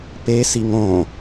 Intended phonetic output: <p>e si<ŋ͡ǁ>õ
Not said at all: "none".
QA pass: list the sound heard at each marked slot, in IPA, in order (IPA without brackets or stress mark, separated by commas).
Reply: p, ŋ